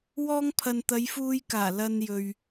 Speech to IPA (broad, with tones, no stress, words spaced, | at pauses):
wɔː˧ŋpʰɐ˨n t̪ɐ˨˧jfuː˧jkaː˨˩ lɐ˧njɵ˨ɥ